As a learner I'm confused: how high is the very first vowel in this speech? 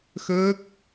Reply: mid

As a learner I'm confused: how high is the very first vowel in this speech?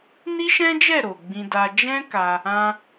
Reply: high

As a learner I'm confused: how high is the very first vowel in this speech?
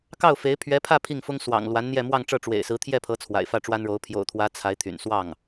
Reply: low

